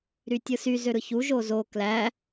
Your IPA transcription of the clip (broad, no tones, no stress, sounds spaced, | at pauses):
ɾ y tʲ ɯ s y z ø ɾ ɯ ç u ʒ o z o k l æ